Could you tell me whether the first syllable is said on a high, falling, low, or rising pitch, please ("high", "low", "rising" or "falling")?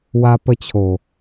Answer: high